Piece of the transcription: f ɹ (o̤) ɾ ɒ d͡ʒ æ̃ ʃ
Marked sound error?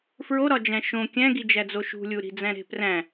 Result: yes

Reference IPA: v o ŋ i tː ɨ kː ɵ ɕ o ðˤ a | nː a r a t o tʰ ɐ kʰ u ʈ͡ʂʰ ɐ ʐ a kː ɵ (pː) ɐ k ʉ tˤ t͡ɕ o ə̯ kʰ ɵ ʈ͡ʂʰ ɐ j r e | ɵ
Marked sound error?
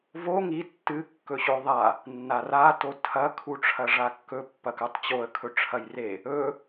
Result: no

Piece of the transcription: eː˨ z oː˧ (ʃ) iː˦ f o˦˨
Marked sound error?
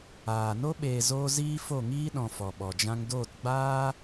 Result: yes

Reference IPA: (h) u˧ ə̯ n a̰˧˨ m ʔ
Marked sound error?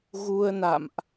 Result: yes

